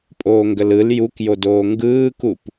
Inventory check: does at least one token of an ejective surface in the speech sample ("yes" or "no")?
yes